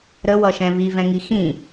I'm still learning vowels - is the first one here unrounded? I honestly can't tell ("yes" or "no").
yes